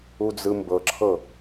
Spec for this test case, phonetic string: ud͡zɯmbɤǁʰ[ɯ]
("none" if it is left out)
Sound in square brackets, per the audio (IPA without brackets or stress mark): ɤ